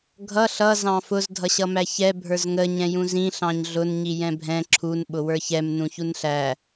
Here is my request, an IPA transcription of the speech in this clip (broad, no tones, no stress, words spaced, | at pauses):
ɡʱʌ ɬʌ zɑ̃fʊz dʱʌɕʌmæçɛ bʱə˞zŋə ɲɛ̃jũzĩ ɬɑ̃ɲɮʊn ɲijɛ̃bʱɛ̃ ǁʰun ɓʊwə˞çɛm nũçunɬæ